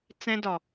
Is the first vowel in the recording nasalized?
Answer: yes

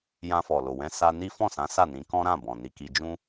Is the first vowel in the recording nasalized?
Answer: yes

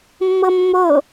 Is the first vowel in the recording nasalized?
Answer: no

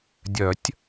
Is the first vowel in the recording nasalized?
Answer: no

